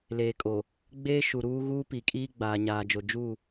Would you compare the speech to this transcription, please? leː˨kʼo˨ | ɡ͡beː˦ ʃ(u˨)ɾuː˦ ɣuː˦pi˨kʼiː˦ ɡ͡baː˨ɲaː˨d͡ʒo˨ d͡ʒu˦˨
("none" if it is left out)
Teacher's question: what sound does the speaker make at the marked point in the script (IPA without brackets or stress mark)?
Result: u˨